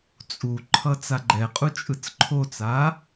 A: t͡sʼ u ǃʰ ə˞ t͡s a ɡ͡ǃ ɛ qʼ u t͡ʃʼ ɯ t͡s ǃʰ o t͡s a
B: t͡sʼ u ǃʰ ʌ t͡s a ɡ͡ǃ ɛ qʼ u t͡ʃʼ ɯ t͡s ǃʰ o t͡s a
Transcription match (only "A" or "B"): B